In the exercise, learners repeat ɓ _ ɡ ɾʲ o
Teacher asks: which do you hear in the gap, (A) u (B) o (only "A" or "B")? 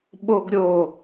B